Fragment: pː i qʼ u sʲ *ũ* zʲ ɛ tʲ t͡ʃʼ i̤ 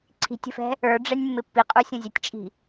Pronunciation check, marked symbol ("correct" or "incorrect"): correct